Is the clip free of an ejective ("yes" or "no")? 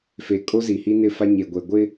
no